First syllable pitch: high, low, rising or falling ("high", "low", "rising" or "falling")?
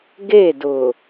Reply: falling